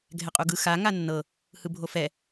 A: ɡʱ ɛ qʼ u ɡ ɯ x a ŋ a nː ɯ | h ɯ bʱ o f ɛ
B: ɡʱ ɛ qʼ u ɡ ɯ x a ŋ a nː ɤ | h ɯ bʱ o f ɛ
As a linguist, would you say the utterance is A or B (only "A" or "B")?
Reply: B